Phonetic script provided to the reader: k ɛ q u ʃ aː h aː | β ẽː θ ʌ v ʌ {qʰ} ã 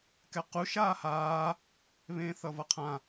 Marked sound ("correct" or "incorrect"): correct